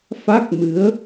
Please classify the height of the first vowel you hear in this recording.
low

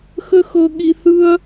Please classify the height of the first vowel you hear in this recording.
mid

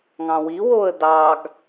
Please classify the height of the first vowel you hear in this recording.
low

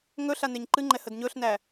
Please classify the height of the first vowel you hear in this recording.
mid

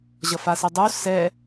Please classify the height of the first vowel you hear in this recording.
mid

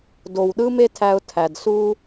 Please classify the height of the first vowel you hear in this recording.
mid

